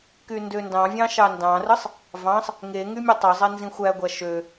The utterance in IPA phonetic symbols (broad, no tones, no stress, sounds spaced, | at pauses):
k y n d ø n d ɑ̃ vʲ ɑ̃ ʃ ɑ n d ɑ̃ r ɯ sˤ | v ɑ̃ sˤ | ŋ e ŋ y mʲ e tˤ ø zˤ e n z ĩ xʷ æ ɡʷ æ ʃ ø